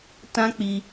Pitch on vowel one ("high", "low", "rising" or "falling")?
high